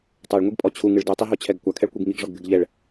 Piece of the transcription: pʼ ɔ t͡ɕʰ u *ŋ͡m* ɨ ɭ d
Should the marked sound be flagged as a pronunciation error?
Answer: yes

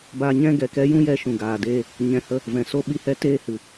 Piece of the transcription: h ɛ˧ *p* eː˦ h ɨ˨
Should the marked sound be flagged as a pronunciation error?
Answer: yes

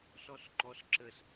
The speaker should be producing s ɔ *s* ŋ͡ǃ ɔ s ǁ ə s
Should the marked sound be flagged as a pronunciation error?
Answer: no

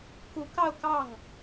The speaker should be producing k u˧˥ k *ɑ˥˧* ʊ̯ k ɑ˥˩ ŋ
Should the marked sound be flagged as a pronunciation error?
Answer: no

